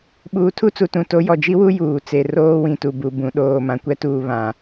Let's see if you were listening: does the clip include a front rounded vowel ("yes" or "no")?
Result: no